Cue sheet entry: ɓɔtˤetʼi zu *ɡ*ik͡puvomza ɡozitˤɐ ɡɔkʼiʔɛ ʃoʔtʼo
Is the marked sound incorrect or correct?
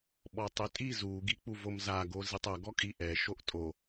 correct